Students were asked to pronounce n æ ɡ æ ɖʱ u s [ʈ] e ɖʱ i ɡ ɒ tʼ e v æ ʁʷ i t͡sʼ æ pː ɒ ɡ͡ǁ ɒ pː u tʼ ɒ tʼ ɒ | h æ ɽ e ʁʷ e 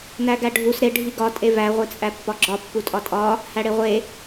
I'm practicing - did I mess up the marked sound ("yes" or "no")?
yes